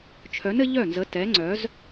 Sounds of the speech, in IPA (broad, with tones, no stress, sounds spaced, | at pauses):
t͡ʃʰ œ˨˥ n ɘ˨˥ ʎ œ˥˩ n z ə˨˥ t ɛ˨˥ ŋ͡ǀ œ˨˥ z